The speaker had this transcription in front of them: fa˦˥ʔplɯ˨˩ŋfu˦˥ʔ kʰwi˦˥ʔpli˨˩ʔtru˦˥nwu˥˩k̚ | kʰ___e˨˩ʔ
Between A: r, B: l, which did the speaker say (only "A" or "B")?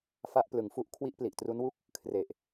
A